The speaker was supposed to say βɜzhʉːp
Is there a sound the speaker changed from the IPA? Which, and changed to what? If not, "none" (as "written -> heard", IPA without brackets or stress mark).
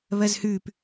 none